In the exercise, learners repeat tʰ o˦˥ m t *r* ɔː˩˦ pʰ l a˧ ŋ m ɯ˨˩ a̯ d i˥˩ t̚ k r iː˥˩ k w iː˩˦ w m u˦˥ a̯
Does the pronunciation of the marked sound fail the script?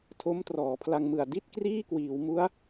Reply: no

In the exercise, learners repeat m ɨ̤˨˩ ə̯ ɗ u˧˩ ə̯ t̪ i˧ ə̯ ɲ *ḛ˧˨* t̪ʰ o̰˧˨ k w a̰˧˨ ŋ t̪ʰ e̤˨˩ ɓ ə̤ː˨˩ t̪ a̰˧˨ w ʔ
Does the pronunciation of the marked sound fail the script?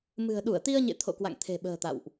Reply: no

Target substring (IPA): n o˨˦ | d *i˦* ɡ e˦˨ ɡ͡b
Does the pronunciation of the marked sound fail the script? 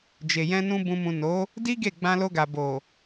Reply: no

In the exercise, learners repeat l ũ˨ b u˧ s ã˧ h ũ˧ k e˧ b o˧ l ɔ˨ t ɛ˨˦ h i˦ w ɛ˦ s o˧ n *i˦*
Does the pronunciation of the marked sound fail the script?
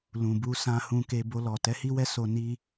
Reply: no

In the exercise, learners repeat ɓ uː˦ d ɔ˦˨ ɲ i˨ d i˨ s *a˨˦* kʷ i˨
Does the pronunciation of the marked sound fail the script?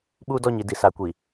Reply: no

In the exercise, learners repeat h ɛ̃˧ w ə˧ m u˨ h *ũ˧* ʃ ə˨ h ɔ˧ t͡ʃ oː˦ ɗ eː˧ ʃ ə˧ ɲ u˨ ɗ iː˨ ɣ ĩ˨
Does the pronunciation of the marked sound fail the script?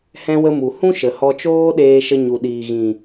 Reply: yes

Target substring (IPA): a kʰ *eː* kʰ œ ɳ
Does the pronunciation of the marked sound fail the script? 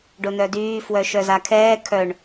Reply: yes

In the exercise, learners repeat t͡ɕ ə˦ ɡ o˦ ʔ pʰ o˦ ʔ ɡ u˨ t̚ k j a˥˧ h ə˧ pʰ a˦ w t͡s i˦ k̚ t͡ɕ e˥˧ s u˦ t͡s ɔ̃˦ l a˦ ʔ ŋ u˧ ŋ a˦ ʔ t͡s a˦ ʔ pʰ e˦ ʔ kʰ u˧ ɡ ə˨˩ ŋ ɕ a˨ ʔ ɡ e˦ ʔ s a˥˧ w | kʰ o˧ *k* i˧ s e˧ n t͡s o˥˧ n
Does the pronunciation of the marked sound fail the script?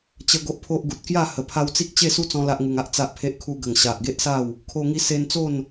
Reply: yes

